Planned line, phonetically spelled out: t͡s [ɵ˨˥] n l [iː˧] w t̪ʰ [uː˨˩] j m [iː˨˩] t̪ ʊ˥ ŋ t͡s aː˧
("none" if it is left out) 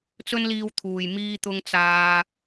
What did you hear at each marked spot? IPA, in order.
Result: ɵ˥, iː˧, uː˨, iː˥

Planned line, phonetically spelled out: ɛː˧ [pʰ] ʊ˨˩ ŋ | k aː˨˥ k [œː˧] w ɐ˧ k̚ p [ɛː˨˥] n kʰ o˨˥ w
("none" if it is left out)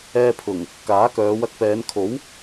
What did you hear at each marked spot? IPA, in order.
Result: pʰ, œː˨˧, ɛː˨˧

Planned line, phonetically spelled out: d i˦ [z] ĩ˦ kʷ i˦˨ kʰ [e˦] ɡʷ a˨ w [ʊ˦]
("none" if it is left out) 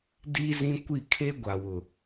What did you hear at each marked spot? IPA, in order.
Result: z, e˦, ʊ˨

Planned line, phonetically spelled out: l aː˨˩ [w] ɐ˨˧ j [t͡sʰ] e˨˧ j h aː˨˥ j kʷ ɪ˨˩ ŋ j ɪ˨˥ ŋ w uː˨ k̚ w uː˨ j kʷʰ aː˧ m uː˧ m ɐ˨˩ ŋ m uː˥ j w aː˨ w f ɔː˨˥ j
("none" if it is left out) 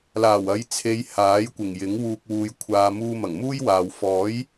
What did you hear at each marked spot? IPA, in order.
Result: w, t͡sʰ

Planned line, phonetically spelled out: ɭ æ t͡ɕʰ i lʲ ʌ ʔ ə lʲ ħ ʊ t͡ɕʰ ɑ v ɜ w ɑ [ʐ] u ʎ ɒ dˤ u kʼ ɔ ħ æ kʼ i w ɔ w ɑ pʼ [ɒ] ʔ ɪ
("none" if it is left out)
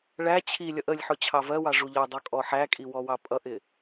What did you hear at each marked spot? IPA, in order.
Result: ʐ, ʌ

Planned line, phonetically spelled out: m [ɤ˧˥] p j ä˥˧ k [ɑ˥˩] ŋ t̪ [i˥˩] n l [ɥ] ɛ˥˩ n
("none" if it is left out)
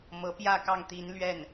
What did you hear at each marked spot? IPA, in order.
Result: ɤ˧˥, ɑ˥˩, i˧˥, ɥ

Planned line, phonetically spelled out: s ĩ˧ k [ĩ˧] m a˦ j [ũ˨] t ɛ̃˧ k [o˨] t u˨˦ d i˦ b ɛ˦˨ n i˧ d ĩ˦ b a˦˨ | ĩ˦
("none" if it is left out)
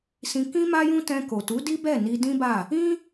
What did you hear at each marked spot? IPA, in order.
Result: ĩ˦, ũ˦, o˨

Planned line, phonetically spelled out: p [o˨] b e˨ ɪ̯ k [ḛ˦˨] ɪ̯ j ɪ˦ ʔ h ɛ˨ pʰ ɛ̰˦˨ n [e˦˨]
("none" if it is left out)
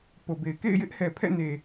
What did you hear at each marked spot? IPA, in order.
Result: o˨, ḛ˦˨, e˨

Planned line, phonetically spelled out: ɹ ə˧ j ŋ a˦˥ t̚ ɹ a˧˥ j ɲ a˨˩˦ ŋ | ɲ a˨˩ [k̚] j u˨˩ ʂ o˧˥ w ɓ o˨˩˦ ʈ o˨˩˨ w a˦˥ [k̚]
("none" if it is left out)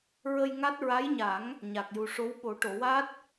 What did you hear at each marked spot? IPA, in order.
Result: k̚, t̚

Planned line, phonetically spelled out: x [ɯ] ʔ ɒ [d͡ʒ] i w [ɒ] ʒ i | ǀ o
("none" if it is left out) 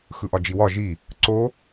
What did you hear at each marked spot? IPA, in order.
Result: ɯ, d͡ʒ, ɒ

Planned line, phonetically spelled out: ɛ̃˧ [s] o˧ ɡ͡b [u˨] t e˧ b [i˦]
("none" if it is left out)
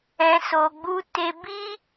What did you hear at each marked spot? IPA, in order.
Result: s, u˦, i˦

